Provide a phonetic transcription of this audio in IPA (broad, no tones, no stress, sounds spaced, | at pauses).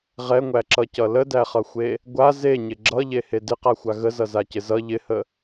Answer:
ʁ ɛ ŋʷ æ ǁ ʌ c ʌ l ə d æ χ ʌ xʷ e | ɡʷ a z e ɲ ɪ ɡ͡ǁ ʌ ʎ e h e d ɪ q a xʷ a ɣ ə z ʌ z a c ɪ z ʌ ʎ ɪ h ə